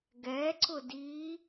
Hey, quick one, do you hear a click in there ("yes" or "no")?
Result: yes